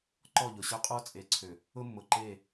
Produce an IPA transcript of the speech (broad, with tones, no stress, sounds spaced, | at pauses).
ǃ ɔ˦˨ ʎ ʊ˨ ɕ ø˦ qʼ o˦ t͡sʼ e˨˦ ǀʰ ø˨ | ʊ˦ mː ʊ˨ ǃ e˦˨